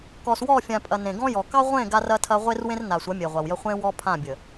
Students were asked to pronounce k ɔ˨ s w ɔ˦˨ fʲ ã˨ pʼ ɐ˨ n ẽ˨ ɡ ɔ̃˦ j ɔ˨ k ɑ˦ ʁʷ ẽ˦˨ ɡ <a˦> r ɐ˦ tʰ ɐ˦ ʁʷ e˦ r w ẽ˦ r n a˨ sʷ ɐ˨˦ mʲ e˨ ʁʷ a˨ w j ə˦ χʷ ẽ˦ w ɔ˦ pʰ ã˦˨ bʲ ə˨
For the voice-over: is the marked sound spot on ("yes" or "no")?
yes